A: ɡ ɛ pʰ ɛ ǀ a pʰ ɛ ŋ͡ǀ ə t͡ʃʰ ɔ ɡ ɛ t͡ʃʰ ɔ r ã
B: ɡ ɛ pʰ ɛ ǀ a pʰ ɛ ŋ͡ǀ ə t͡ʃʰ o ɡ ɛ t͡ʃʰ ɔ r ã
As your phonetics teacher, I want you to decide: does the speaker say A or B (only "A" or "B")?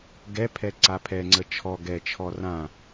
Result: A